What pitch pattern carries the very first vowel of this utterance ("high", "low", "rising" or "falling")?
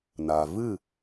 low